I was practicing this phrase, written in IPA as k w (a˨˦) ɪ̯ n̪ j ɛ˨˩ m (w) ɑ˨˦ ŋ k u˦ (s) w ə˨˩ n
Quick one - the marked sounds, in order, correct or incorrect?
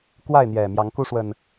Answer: incorrect: a˥˨, incorrect: j, incorrect: ʂ

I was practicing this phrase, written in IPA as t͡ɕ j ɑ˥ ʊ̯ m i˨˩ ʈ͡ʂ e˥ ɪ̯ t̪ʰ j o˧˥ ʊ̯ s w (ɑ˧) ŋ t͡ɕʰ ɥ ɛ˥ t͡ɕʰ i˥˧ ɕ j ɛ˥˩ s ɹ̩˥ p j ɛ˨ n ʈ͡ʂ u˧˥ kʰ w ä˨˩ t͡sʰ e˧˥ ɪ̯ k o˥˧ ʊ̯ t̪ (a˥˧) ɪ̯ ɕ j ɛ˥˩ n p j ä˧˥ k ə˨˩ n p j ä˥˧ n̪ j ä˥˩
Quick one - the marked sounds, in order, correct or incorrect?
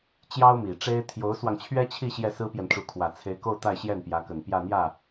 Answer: correct, correct

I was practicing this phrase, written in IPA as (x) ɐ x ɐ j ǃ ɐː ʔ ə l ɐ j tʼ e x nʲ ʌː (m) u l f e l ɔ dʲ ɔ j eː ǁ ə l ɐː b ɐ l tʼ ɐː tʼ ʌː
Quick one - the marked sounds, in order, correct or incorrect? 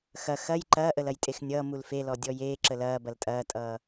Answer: correct, correct

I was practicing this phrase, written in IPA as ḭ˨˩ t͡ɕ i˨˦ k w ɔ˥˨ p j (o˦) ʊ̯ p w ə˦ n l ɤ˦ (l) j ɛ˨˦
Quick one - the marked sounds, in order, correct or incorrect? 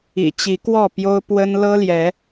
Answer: correct, correct

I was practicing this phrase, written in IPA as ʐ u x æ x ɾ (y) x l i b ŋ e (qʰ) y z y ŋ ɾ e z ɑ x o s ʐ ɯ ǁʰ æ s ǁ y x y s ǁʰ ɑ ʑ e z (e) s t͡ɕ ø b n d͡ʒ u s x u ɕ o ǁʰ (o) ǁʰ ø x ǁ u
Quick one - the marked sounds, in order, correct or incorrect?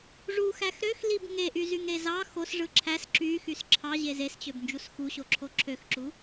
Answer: incorrect: ø, incorrect: ʔ, correct, correct

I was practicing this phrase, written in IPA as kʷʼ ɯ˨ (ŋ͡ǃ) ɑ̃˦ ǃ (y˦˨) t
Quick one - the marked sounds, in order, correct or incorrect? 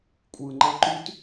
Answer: correct, incorrect: y˦

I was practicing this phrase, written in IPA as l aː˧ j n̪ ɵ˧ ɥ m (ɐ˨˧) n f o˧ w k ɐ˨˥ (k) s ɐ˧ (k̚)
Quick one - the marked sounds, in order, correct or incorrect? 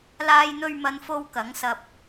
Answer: correct, incorrect: ŋ, incorrect: p̚

